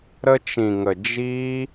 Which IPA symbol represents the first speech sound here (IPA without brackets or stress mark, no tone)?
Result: ɾ